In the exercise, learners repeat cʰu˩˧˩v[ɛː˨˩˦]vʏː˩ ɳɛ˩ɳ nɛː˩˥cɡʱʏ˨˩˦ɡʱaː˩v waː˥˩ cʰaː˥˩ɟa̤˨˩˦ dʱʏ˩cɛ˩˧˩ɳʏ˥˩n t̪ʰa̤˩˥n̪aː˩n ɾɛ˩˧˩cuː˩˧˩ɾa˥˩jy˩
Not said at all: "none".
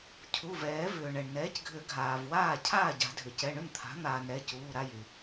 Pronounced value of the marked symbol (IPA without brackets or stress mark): ɛː˨˩˦